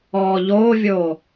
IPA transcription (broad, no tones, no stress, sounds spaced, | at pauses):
ɔː ʎ oː vʲ oː